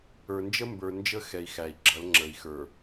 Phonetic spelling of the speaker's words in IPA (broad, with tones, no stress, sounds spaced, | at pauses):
ə˞˨ n d͡ʒ ə˦ m b ə˞˨ n d͡ʒ ə˦ x ɛ˨ i̯ x æ˨ i̯ ɡ͡ǁ ʌ˨˦ l ŋ͡ǁ ə˨ i̯ x ə˞˨